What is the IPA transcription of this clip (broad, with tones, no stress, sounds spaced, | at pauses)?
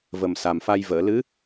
v ə˨˩ m s a˨˩ m f a˧ j v əː˨˩˨ l ɨ˧˥